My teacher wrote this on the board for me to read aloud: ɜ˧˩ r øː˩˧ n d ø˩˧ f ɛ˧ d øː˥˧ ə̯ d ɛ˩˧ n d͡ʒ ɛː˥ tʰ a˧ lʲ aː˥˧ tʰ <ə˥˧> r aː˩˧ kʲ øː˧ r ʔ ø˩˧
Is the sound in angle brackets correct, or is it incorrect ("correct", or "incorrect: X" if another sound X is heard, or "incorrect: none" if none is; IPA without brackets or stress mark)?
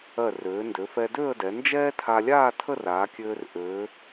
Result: correct